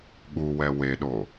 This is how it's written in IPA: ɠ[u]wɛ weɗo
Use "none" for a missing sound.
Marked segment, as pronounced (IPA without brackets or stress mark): u